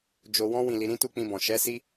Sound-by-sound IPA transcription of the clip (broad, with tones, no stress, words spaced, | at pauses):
d͡ʒo˧wɔ̃˦ wĩ˦˨li˧ ɾĩ˦tu˦k͡pĩ˧bɔ̃˨ ʃɛ˨˦si˦